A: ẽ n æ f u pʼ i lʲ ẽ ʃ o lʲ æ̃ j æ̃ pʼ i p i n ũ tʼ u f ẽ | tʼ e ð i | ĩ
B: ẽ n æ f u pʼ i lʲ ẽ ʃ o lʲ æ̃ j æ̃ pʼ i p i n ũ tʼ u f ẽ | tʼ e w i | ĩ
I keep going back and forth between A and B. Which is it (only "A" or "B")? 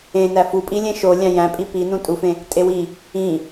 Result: B